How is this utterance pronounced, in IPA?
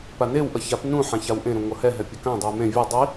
p a n e w ʔ ʌ ç a p n ũ ħ ã ç a w ʔ ẽ ɾ ũ ŋʷ ʌ h ɛ ɦ ɛ pʲ ʌ k ã dˤ u j m ẽ vʲ ʌ dˤ i

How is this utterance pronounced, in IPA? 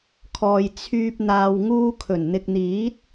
kʰ ɔː˨ j t͡sʰ yː˨ p̚ n̪ aː˨ w ŋ uː˧ kʰ ɵ˨˩ n n̪ ɪ˨ k̚ n̪ iː˨˥ t̚

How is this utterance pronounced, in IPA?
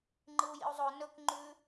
ŋ͡ǃ ɨ u̯ j ḭ u̯ zˤ o n ɵ k ŋ͡ǃ ʉ

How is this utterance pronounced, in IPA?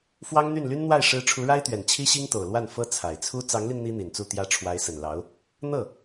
f w ɑ˥ ŋ n̪ y˥˩ n l y˥ n n̪ w a˥˩ ɪ̯ ʂ ɻ̩˧˥ ʈ͡ʂʰ u˧˥ ɻ a˥ ɪ̯ t̪ ɥ ɛ˨˩ n t͡ɕʰ i˥ ɕ i˥ ŋ t̪ o˨˩ ʊ̯ l w a˥˩ n f ɤ˥ t͡sʰ a˨˩ ɪ̯ t͡sʰ u˥ t͡s ɑ˧˥ ŋ l i˧ n n̪ i˥ n̪ i˨˩ n t͡s u˥˩ t̪ j ä˥ ʈ͡ʂʰ w a˧˥ ɪ̯ s ə˨˩ n l ɑ˧˥ ʊ̯ | n̪ ɤ˥˩

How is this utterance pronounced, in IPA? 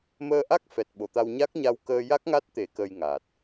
m əː˧ ʔ a˦˥ k̚ f ɛ˨˩ t̚ ɓ o˨˩˨ t̪ a˧ w ɲ a˦˥ k̚ ɲ a˧ w k əː˧ j a˦˥ k̚ ŋ a˦˥ t̚ t̪ e˨˩˦ k ə˧ j ŋ a˨˩ t̚

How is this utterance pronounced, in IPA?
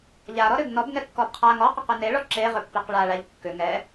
ʎ a ɾ ɔ ɾ ʏ ɡ n ɔ b ŋ ɛ kː ɔ b qʰ a ŋ ɔ q ɔ q ʏ n e ɭ ɔ ǁ e ʁ ʏ pː e q ɭ a ɭ a ʎ kː ʏ ŋ ɛ

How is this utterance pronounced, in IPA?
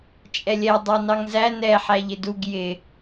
t͡ʃʼ ɛ lʲ ɛ dˤ ɑ n ɑ ŋ z æ n ɛ ħ æ ʎ ɪ d u ɡ j ɪ

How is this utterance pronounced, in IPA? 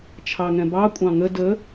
t͡ʃʰ ɑ ŋ ɛ̃ b ɑ kʷʼ ɑ̃ ŋ ə d ə

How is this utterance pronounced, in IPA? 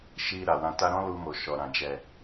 ʃ i˧ ɾ a˨ w ã˧ t a˦ ɾ ɔ̃˦ l u˧ m o˨ ʃ ɔ˨ ɾ ã˨ d͡ʒ ɛ˨

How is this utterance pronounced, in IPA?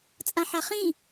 t͡sʼ ã ħ a χ ĩ

